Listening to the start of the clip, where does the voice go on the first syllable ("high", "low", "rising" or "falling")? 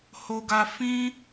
low